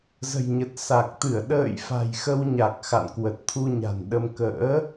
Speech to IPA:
zə̤˨˩jɲə˨˩t̚ sa˨˩k̚ t̪ɨ˧˩ə̯ɗə̰ː˧˨jfa̤˨˩j xə˧wɲa˨˩k̚ xa̰˧˨nkwə˨˩t̚t̪ʰu˧ ɲa̤˨˩nɗə˧m kə̰ː˧˥

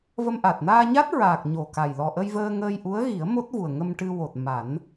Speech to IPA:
və˧mʔa˨˩t̚ naː˧ɲa˦˥t̚ ɹaː˨˩k̚ ɲo˨˩ka˨˩j lɔ˨˩ʔə˧j vəː˧ŋəː˧jʔu˧˥ə̯ɣi˨˩˦ə̯ mo˦˥t̚vu˨˩ə̯ŋə˧m ʈɨ˧wo˨˩t̚ ma˨˩˦n

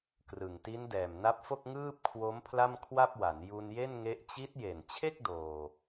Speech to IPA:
krɯ˨˩ŋti˦˥n dɛː˨˩mna˦˥p̚fo˥˩k̚ ŋɯː˥˩p̚kʰwo˦˥m pʰla˥˩mkʰwa˥˩p̚wa˩˦n ju˧nje˥˩nŋe˦˥ʔ t͡ɕi˦˥t̚je˨˩n t͡ɕʰe˥˩k̚ doː˧

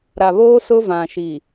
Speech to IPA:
ɾa˨βoː˦sʊ˦vã˨ ʃi˨

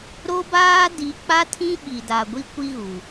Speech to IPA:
ɾo˦baː˦ di˨˦k͡pa˦tʰĩ˦ ɓi˨da˨ɡʷi˦ kʷi˦ɣu˨

